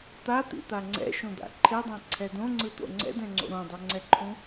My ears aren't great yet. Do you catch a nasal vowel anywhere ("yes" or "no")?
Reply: yes